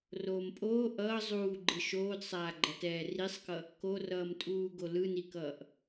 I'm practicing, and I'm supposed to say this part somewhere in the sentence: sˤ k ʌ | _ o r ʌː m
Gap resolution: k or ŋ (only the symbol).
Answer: k